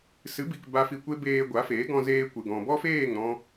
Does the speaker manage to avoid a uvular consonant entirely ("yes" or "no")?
yes